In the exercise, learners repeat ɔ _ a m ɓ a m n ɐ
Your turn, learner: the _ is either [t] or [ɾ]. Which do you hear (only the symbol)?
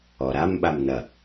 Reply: ɾ